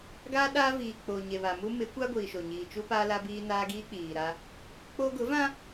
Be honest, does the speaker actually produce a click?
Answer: no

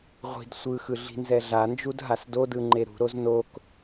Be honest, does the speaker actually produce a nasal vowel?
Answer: no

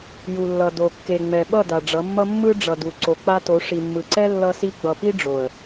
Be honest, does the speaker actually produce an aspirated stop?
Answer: no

